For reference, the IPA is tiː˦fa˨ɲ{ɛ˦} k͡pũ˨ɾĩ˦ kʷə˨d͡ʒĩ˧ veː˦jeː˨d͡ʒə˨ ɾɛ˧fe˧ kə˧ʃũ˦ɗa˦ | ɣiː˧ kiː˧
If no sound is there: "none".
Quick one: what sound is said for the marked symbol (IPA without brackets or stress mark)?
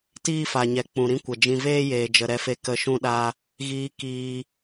ɛ˨